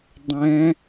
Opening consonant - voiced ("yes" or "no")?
yes